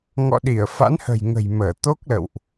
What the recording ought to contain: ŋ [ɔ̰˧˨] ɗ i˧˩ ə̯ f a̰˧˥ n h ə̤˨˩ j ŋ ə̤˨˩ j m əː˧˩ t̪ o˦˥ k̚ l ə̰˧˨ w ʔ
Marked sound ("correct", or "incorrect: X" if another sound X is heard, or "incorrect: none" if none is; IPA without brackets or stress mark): correct